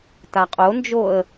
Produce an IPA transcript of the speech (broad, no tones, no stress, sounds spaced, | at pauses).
t a qʼ o n d͡ʒ o ə̯